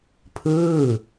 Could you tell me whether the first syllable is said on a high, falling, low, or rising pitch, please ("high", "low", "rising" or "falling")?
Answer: falling